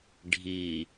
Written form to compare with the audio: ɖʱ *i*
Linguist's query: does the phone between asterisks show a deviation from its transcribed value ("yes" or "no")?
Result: no